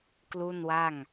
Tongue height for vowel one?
high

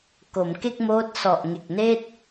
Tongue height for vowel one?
mid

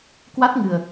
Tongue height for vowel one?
low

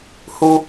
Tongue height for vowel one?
high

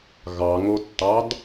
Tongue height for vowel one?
low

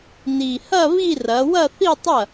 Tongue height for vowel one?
high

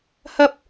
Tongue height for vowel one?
low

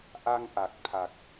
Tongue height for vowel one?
low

